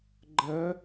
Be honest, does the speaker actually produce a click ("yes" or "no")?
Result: yes